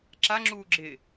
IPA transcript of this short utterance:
ǁ a ŋ͡ǁ uː ɡ͡ǁ ɪ

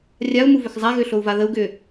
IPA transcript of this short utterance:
rʲ a u̯ m u v ʏ x zˤ a ɣ ʏ ɬ o u̯ v a ð ə u̯ ɡ ʏ

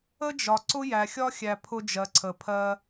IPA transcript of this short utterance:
ə˦ d͡ʒ ɒ˨ ǀ ʊ˦ j æ˨ xʲ ɒ˦ xʲ æ˨ pʰ ʊ˦ d͡ʒ ɜ˨ ǀʰ ə˨ pʰ ɜ˦

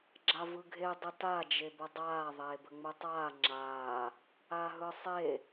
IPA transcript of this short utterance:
ɡ͡ǁ a v ɯ ɡʱ e dˤ ə t a d͡ʒ e b ə dˤ aː ðˤ eː b ə ŋ͡m ɯ tˤ aː ŋ͡ǁ aː | a ɦ ɯ sˤ e

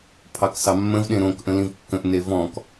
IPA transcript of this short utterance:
pʰ ɑ k s ɑ mː ə̃ v ɗ ẽ ɾ õ k ʔ ə̃ l ĩ v kː ə̃ ʔ n e v ɔ̃ k

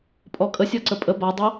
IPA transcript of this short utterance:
pʼ ɔ kʼ ə sʲ ɔ ǀ ə pʼ ə b a dˤ ɛ

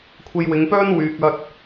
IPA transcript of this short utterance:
kʷʰ e˧ j w ɪ˨˧ ŋ p œː˥ n w yː˨ k̚ ɐ˥ t̚

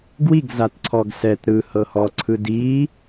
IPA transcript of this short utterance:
ɡ w i ɡ z a t ǀʰ ɔ ɡ s ɛ t ɾ ɯ h ɤ h ɔ ǀʰ ɯ d i

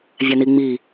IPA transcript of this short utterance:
vʲ æ n i ŋ͡m i

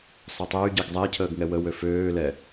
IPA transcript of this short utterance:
sˤ ɛ tˤ ɛ y̯ ɟ e ɡ zˤ ɛ cʰ əː ɡ ŋ ɛ w ə w ø f øː l ɛ

